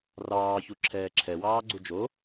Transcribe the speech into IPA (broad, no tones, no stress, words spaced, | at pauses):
rɑːçuǁʰɛː ǁʰɛwɑːɡ͡ǀu d͡ʒo